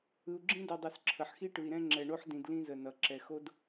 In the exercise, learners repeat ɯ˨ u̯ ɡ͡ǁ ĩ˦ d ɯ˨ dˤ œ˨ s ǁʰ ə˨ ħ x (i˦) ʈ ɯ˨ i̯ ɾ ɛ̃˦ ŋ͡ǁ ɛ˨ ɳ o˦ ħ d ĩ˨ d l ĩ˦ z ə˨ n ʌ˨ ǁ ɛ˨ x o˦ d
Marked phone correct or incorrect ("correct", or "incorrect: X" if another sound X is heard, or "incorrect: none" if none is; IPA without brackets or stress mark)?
correct